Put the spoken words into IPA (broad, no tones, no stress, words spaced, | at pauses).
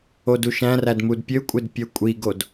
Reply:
oduʃæ̃ræd mudpʲøkʷʼed pʲøkʷʼiɡod